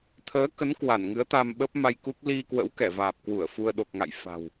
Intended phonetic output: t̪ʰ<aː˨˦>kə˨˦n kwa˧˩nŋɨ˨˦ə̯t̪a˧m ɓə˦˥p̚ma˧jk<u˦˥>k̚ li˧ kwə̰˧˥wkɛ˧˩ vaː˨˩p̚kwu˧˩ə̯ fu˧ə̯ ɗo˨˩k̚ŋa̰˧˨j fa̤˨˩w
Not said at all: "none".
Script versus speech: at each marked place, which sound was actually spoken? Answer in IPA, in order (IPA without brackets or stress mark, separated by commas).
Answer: əː˨˦, u˦˥